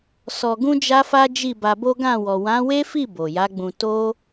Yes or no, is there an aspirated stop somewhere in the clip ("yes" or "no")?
no